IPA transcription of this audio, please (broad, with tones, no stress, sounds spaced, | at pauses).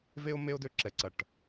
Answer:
v e˥ ʊ̯ m e˥ ʊ̯ d ø˦˨ ǁ ɛ˨˥ ǀ ɐ˨˩˦ ʈ